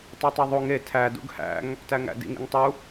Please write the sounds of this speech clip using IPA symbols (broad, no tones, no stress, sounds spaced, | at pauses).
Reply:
tˤ e tˤ e ðˤ u ŋ e tʰ æ d ṵ ɡ h æ̰ ŋ | t æ ŋ æ̰ d ḭ ŋ ḭ ŋ tˤ u